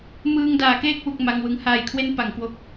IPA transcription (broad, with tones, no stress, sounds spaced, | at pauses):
m ɯː˧ ŋ d aː˩˦ k eː˥˩ k̚ w u˨˩ k̚ m a˧ ŋ w ɯ˧ ŋ h aː˨˩ j kʰ w e˦˥ n p a˩˦ ŋ k w o˨˩ k̚